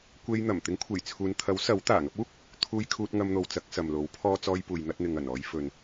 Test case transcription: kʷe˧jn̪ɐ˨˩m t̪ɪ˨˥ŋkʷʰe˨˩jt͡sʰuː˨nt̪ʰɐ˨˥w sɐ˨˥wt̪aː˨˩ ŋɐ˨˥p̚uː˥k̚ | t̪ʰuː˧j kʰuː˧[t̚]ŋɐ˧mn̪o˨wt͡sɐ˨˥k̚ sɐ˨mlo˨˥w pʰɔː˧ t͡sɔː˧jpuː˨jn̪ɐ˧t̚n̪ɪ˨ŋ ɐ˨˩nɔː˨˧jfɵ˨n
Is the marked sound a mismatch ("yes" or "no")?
no